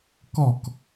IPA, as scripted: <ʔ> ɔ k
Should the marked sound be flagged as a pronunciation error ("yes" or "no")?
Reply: yes